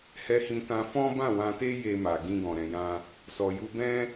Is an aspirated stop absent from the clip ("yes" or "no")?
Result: yes